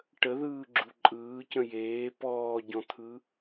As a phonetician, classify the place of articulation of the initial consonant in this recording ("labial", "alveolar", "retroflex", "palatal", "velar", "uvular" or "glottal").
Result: retroflex